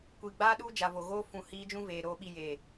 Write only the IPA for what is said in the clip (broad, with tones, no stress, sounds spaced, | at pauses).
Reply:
kʷ i˨ ɡ͡b aː˧ ɗ u˧ d͡ʒ a˨ v o˨ ɣ oː˧ f ũ˨ h iː˧ d͡ʒ ũ˧ v eː˨ ɾ oː˨ ɓ i˨ j e˨